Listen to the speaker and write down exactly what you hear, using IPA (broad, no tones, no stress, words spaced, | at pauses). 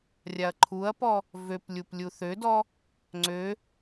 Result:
rʲaɐ̯ǃʰuɐ̯pɔ | vøp lʲuplʲuθødɔ | ŋ͡ǀø